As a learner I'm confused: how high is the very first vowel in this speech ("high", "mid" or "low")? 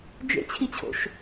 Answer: mid